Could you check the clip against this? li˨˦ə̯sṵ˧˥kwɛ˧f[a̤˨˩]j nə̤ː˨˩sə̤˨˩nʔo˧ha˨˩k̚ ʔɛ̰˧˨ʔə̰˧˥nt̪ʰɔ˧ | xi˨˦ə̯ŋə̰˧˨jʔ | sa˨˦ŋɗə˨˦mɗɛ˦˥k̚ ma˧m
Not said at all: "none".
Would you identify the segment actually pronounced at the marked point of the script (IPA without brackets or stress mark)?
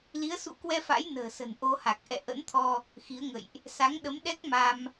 a̰˧˥